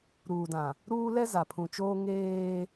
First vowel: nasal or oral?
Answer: oral